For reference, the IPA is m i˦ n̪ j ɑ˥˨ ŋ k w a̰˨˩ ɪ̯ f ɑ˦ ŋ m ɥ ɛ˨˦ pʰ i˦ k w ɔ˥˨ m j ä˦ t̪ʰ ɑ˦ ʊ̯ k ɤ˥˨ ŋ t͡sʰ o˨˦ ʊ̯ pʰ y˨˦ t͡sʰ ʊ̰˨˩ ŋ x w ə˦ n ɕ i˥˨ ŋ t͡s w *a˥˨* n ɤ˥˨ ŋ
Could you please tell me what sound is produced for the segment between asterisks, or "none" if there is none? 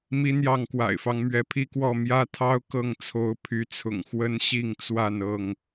a˥˨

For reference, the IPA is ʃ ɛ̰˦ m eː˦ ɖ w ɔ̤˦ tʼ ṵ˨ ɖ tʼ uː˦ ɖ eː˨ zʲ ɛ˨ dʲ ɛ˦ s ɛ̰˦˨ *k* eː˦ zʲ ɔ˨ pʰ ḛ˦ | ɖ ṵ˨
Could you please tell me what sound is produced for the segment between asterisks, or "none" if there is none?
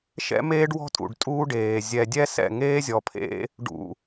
ŋ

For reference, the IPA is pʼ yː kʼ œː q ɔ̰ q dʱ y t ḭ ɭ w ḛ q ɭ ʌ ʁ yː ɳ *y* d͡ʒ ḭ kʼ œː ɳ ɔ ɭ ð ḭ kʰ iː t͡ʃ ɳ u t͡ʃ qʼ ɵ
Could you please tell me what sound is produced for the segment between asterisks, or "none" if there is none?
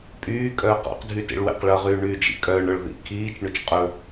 yː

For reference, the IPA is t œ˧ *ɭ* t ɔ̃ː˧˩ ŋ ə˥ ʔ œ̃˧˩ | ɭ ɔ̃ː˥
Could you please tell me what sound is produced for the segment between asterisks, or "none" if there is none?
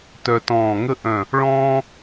none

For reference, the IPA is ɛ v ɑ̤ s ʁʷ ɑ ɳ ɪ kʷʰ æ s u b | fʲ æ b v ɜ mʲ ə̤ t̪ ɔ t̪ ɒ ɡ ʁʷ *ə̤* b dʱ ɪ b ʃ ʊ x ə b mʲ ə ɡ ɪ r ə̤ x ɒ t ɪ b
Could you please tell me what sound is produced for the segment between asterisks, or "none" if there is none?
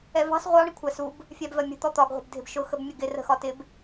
ə̤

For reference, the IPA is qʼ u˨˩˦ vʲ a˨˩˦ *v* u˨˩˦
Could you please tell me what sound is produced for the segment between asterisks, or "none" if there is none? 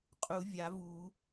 v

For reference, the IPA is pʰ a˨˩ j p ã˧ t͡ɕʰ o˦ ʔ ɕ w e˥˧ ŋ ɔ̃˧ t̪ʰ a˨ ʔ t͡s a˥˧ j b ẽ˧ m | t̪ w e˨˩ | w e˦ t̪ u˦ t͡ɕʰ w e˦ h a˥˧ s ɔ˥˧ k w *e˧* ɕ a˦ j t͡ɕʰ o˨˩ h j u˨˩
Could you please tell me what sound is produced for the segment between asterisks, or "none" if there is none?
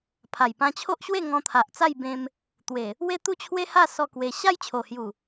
e˧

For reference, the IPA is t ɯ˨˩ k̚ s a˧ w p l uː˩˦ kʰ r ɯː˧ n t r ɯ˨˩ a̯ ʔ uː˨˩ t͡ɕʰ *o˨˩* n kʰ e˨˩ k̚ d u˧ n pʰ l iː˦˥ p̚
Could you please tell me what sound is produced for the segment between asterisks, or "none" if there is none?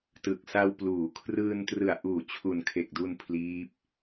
u˨˩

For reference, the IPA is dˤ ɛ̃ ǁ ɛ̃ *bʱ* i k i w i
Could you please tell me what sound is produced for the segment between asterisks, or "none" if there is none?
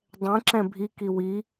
bʱ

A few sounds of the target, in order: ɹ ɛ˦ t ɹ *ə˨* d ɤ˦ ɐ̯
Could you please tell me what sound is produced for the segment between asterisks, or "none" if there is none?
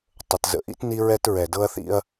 ɛ˨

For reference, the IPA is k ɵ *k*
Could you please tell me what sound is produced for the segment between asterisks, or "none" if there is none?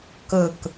k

